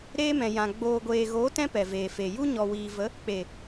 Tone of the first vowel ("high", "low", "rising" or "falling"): high